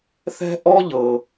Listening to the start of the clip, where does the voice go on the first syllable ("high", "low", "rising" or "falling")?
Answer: high